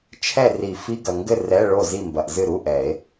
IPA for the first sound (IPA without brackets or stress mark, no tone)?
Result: t͡ʃʰ